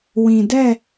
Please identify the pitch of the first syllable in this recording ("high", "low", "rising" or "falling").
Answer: low